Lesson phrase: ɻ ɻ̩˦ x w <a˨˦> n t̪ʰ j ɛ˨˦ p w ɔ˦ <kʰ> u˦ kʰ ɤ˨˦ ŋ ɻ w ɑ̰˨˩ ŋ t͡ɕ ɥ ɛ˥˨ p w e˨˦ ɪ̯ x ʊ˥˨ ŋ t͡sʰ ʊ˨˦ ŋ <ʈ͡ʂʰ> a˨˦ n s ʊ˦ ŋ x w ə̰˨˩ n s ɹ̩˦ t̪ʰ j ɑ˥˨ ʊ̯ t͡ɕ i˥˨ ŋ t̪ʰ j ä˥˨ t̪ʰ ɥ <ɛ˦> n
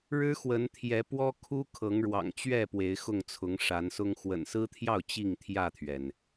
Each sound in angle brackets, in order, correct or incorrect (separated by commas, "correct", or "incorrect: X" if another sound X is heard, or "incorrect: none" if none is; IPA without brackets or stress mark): incorrect: ə˨˦, correct, incorrect: ʂ, incorrect: ɛ˩